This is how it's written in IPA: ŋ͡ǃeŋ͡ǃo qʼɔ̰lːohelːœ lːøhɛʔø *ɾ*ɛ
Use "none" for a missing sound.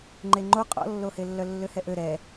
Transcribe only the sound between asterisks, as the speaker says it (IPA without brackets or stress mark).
ɾ